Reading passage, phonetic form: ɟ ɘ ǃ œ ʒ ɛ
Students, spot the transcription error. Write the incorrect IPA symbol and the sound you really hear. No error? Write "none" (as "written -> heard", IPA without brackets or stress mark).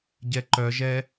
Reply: ɘ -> ɛ